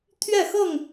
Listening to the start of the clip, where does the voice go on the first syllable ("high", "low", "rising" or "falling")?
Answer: falling